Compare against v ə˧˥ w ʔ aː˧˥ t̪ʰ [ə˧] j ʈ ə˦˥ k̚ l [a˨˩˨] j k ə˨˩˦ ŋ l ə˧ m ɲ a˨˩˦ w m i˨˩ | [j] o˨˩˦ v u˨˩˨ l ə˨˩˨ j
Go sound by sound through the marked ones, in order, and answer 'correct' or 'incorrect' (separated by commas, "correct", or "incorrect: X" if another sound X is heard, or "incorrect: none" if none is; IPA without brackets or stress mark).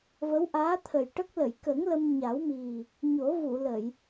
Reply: incorrect: ə˨˩, incorrect: ə˨˩˨, incorrect: ɲ